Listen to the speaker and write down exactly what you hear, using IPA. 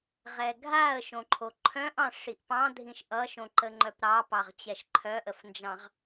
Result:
ʁ ɛ ɡʱ a ə̯ ʃ õ ǃʰ o ǃʰ œ̃ ʔ ɑ̃ ʂ i ʔ p ɑ̃ dʱ ĩ ʃ ʔ ʌ ʃ õ ǃ ə ŋ͡ǃ œ p ɾ ɑ p ɑ ʁ t͡ɕ ɛ ʃ ǃʰ œ ʔ ə f n d͡ʒ ɑ̃ ʁ

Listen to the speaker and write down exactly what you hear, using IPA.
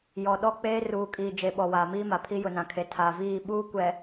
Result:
j ɔ˨ ɗ ɔ˦ k͡p eː˦ r uː˨ kʼ iː˨ d͡ʒ e˨ ɓ ɔ˨ w aː˨ m iː˦ m a˨ pʰ i˦ j ʊ˨ n ã˨ kʰ e˨ tʰ a˨ v iː˦˨ ɓ uː˦ kʷ ɛ˨

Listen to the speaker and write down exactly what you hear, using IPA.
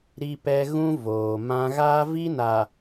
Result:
ɾ i˦ p ɛ˦ ɣ ũ˦ v oː˨ m ã˦ ɣ a˦ v i˦ n a˨

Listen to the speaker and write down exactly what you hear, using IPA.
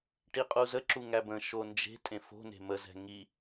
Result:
ʈ i qʼ u z ə ǁ u ŋ æ b ə̃ ʃ o n d͡ʒ e̤ tʼ ẽ f o̤ n e̤ m ə z ɛ̤ ŋ i

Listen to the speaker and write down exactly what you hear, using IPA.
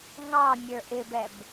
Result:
ŋ ɑ mʲ ə˞ ʔ ɪ b ɛ b

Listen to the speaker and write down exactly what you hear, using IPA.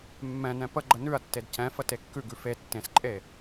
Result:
mː ɛ̃ n ɛ̃ p ə ɡ͡ǃ ə n ʉ ɐ̯ tː e d c ɛ̃ f ə t e kː ʉ ɡ ʉ f e tː ẽ s ǃʼ e

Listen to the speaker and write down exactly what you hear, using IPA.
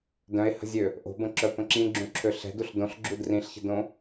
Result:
d œ̃ e̯ h ə̤ zʲ ø | ʔ o̤ b ə̃ ǁ œ p ə̃ ǁ ĩ ɡ͡ǁ ũ ǁʰ ø ɬ ɛ̤ d u ɬ d õ ɬ ɡ͡ǁ u d r ĩ ɬ ç ə̤ d õ

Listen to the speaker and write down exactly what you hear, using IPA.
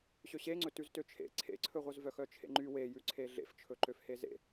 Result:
ɕ ø ɕ e ŋ͡ǀ ɵ t ʉ z t ø t͡ʃʰ ḛ ǀʰ ḛ ǀʰ ɵ ʁʷ œ z v œ x œ t͡ʃʰ ḛ ŋ͡ǃ y w e j ʉ ǀʰ e ɮ ḛ f t͡ʃʰ ɵ ǃ ø f h e z ḛ

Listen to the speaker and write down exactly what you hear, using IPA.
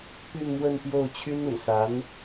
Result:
p y˥˧ n m w ə˥˧ n p j o˥˩ ʊ̯ t͡ɕʰ y˥ n ṵ˨˩ s a˧˥ n

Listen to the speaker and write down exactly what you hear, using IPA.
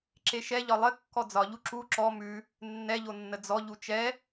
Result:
ǁ e ʃ ɛ ʎ ɒ lˠ ɘ kː ɔ d͡z ɒ ʎ u ǁ u ǁ ɔ m ʉ | nː ɛ ʎ o nː ə d͡z ɔ ʎ u t͡ʃ ɛ

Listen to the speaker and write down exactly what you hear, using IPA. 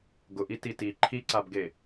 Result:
ɡ ʊ ʔ i t i t i ǃʰ i ǀ a b ɡ e

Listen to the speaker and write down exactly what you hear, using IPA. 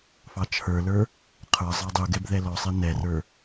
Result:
f ɑ t͡ʃʰ ə˞ l ə˞ | qʰ ə˞ zˤ ɑ dˤ u ɡ ɛ b ð ɛ l ɔ sˤ ɛ n ɛ r ə˞

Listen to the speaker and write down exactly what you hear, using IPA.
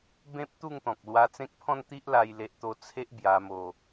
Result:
b ẽ˦ p̚ t̪ u˥˧ ŋ t̪ ɔ̃˨ k̚ l w a˧ t͡s ẽ˦ k̚ pʰ ɔ̃˥˧ n t̪ i˦ ʔ l a˦ j l e˦ ʔ t̪ o˦ t͡sʰ e˦ ʔ b j a˧ m o˧

